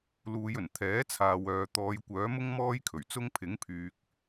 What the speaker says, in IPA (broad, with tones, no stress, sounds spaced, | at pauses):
l uː˨˧ j ɵ˨˩ n t̪ʰ ɛː˨˥ t͡sʰ aː˨ w œː˨ t̪ ɔː˨˧ j kʷ œː˨˥ m ʊ˥ ŋ m ɔː˥ j kʰ ɵ˨˩ ɥ t͡s ʊ˥ ŋ pʰ ɪ˨˥ ŋ pʰ yː˨ k̚